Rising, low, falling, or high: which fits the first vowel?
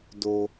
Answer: low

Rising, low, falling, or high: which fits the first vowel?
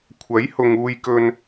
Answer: rising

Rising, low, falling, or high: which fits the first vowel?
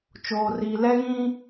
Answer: low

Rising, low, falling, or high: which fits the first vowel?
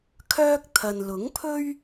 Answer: high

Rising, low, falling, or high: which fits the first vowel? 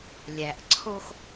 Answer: low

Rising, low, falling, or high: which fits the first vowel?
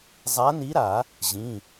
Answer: rising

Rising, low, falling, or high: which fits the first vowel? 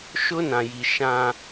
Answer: high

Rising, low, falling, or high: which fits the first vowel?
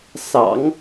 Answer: low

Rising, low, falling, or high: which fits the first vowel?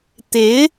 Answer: rising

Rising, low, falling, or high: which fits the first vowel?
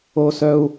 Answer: high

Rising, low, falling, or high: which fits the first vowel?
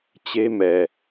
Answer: high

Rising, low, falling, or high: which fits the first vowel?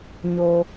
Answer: low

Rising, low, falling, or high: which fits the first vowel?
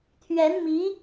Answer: rising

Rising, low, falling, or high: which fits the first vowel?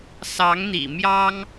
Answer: rising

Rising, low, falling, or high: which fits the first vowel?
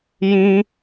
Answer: high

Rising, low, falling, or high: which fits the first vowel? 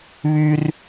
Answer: high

